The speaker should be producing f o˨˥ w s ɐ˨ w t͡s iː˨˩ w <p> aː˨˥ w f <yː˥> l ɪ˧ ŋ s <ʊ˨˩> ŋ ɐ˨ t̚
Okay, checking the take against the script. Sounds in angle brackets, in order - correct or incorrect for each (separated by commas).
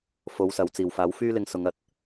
incorrect, correct, incorrect